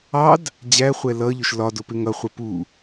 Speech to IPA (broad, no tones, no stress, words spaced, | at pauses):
ɑd | d͡ʑæχʷɛ lʌʎʊʃ lɒdʊ pɪŋʌ χʷəpu